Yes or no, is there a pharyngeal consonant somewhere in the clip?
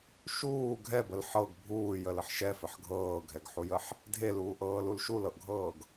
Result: yes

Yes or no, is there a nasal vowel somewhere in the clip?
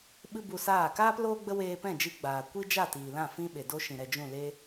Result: yes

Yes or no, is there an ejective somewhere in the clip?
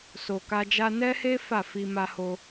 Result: no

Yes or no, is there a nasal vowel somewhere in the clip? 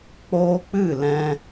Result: yes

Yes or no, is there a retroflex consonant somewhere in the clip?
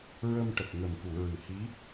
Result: yes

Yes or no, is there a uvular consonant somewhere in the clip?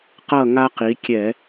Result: yes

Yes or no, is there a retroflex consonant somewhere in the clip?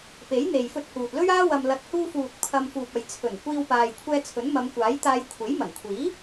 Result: no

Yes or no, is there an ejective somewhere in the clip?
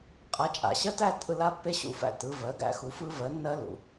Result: yes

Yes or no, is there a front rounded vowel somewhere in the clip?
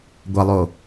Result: no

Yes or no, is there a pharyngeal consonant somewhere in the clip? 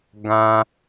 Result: no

